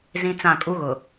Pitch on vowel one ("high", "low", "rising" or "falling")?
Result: high